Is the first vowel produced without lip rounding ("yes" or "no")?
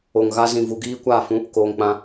no